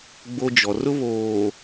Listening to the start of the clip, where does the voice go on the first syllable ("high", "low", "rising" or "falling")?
high